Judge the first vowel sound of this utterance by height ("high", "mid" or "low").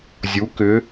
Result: high